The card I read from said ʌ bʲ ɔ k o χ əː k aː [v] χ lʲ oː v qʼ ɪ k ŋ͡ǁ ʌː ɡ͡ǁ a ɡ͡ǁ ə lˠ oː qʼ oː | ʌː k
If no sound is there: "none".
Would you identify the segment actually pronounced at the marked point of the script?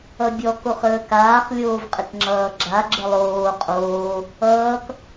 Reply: none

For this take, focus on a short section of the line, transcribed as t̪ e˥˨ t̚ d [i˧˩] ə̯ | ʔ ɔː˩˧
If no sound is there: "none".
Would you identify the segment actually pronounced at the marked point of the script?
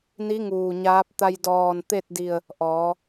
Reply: i˧˩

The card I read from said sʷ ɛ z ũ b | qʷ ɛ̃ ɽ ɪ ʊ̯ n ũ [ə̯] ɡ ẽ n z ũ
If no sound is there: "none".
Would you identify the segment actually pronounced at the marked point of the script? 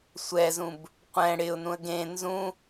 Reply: ə̯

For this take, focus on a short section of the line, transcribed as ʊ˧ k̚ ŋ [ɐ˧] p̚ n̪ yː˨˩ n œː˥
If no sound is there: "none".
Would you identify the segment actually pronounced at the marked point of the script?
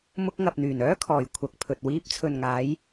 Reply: ɐ˨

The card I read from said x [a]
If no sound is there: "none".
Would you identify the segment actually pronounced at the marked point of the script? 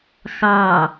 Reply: ɑ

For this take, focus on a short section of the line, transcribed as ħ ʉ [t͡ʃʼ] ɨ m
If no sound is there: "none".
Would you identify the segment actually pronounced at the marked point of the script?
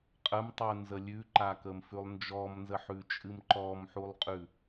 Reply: t͡ʃʼ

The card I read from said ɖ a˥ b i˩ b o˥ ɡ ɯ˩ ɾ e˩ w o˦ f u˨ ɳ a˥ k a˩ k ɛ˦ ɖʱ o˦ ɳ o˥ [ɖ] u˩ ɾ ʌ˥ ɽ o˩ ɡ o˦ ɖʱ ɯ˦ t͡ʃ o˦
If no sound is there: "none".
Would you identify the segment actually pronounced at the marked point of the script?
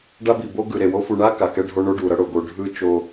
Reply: ɖ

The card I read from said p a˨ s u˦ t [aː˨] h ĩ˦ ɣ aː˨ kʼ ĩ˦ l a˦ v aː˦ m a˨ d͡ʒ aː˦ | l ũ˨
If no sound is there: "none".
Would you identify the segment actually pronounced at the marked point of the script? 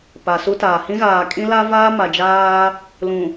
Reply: aː˨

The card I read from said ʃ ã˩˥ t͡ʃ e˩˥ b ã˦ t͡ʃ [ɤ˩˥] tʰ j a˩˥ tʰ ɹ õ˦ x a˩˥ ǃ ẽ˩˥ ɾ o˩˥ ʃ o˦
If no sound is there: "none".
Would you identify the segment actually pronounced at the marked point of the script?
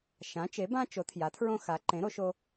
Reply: o˩˥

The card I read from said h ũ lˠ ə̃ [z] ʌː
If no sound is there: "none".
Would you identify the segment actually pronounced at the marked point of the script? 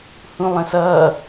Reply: s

